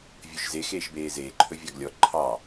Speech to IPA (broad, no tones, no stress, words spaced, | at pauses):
vʲɵʃze xeːʃbeːzeː ǃʰɵvʲɑɡlʲɔ ǃʰɑ